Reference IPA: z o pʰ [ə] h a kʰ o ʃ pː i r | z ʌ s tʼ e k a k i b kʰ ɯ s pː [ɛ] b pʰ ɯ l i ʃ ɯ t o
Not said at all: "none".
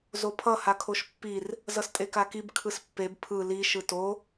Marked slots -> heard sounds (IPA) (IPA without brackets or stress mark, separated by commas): ʌ, e